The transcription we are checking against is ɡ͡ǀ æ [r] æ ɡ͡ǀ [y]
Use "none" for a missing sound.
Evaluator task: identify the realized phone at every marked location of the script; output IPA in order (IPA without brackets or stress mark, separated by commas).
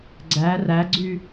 r, y